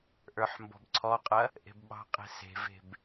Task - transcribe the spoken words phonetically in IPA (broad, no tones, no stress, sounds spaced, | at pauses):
ʔ ə˞ ħ m b ɔ̤ b ǀʰ ɔ qʼ ɐ | ʔ e̤ b ɓ ɑ̤ qʼ e̤ s e̤ v e̤ b